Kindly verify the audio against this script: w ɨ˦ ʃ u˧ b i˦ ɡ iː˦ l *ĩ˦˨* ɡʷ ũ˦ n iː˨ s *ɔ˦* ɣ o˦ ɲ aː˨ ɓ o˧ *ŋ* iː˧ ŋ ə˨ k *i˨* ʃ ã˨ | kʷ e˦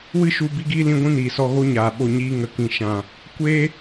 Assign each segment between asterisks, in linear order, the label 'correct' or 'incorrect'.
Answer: incorrect: ĩ˦, incorrect: ɔ˧, incorrect: ɲ, incorrect: ĩ˨

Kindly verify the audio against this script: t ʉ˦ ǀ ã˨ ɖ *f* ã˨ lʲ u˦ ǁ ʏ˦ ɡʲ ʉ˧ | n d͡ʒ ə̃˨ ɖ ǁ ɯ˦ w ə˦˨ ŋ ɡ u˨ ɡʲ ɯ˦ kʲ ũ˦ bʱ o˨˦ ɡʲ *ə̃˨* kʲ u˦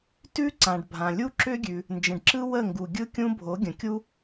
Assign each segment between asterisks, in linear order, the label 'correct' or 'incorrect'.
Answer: incorrect: bʱ, correct

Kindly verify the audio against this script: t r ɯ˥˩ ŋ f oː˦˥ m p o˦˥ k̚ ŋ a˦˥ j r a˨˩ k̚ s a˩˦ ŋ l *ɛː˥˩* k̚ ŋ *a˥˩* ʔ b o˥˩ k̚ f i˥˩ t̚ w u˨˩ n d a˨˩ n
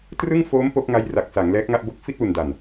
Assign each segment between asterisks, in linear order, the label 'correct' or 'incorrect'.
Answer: incorrect: ɛː˦˥, correct

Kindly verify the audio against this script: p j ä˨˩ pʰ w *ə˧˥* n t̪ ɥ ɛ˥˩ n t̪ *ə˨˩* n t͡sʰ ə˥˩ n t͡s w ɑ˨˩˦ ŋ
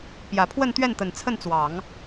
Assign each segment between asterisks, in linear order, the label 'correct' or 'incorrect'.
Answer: incorrect: ə˥˧, correct

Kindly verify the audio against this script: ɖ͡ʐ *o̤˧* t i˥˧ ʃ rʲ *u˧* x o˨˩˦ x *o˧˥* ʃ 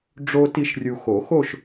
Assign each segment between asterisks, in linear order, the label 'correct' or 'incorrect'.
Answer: incorrect: o˧, correct, incorrect: o˥˧

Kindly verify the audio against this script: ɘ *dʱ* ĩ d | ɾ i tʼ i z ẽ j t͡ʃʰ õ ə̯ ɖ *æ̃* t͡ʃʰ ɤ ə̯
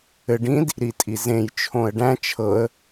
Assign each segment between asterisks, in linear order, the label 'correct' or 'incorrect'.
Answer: incorrect: ɖ, correct

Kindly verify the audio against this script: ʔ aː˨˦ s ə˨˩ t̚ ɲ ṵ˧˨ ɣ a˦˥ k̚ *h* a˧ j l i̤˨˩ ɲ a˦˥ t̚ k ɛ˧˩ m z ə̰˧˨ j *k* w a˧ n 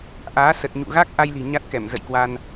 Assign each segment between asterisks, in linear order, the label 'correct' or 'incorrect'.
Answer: incorrect: ʔ, correct

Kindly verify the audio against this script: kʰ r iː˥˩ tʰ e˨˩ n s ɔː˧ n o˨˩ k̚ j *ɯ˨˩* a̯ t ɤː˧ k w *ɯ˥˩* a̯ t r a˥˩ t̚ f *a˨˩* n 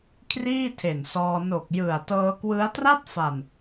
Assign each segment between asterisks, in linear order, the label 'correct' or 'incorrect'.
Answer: correct, incorrect: ɯ˦˥, correct

